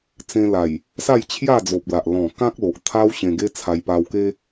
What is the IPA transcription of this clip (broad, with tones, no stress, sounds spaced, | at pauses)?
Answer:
t͡s ẽ˧ l a˨˩ j | s a˥˧ j t͡ɕʰ j a˥˧ d͡z o˨ p̚ l a˨ ʔ l ɔ̃˨˩ k ã˦ k̚ l o˨ ʔ t̪ʰ a˦ w ɕ ẽ˧ ɡ e˦ t͡sʰ a˧ j p a˧ w k e˦